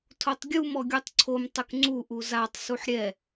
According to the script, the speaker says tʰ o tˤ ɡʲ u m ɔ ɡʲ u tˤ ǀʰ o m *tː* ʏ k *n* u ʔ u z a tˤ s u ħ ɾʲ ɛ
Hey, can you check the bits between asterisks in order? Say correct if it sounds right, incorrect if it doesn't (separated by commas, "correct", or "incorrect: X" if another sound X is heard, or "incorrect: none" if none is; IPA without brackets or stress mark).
incorrect: tˤ, incorrect: ŋ͡ǀ